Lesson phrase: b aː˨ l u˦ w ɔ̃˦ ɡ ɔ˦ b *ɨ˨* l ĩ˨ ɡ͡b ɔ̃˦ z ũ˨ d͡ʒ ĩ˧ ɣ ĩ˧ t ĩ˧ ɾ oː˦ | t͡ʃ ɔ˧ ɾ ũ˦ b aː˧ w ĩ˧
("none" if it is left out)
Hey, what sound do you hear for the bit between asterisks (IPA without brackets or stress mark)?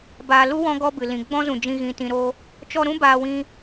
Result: ɨ˨